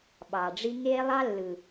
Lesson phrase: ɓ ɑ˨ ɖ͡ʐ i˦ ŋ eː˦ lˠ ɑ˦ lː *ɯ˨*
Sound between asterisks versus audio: correct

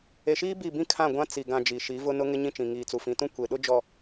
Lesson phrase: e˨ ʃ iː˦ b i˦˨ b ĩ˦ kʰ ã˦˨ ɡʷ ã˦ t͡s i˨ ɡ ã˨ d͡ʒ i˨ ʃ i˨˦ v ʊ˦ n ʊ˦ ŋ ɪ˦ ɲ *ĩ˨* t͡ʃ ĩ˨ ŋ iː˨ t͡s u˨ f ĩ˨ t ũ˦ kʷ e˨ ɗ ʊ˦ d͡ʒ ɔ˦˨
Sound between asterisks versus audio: incorrect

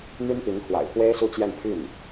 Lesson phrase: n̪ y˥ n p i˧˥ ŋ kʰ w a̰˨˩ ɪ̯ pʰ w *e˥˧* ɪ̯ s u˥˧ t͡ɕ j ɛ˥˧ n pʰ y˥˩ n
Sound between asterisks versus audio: incorrect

